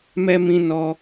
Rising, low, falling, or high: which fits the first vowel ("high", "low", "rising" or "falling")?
high